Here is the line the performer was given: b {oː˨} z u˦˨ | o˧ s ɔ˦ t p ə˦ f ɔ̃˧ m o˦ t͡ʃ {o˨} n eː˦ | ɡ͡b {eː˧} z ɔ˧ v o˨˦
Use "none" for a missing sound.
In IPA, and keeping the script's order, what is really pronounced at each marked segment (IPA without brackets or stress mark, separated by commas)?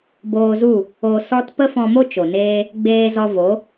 oː˧, o˨, eː˧